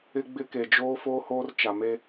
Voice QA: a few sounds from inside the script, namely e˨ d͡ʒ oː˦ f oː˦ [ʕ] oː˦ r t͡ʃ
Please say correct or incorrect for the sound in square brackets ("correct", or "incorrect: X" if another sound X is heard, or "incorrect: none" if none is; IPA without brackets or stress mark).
incorrect: h